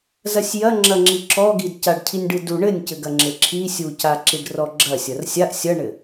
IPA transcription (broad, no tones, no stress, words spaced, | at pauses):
zɐsʲjɐ ŋ͡ǁɐŋ͡ǁiǁɔɡid caɖcʰinʲɖɨdu ɳɘnʲcɘ ɡɐŋ͡ǁɘǁʰi sʲu caǁiɖrɔɡ͡ǁɐ sʲɐrsʲaʔ sʲɐɳɘ